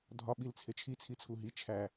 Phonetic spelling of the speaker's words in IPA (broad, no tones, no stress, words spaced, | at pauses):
dʱɒ ɓilt͡sʰet͡ʃʰi t͡sʰit͡sʰuɦi t͡ʃʰæ